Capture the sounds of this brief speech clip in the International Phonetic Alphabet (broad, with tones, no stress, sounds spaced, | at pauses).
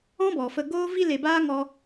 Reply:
ɔ̃˦ b ɔ˨ f ə˧ ɡ oː˦ v i˦ l e˧ b aː˦ ŋ ɔ˦